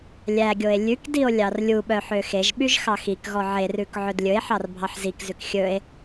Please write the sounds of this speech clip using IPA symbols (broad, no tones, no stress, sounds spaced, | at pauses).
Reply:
lʲ æ ɡʲ o e̯ lʲ ʉ k d i o̯ lʲ ɑ r lʲ u ɓ œ ħ ø x e ʒ ɓ y ʒ x ɑ x i k ɣ ɔ ʕ e r ʉ k ʕ ɵ d lʲ ɵ e̯ ħ ɑ r bʱ ɑ ħ z i k z ʉ k xʲ ɵ e̯